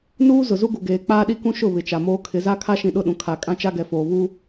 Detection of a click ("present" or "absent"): absent